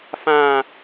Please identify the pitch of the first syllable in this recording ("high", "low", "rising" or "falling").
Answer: high